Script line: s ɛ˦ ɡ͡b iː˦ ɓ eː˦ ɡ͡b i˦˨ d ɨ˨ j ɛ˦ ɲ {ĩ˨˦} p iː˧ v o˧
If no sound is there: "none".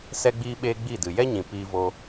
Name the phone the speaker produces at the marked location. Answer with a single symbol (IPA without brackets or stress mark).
ĩ˨